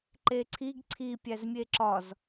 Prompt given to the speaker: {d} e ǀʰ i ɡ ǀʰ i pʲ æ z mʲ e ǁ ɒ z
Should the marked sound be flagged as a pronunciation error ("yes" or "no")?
yes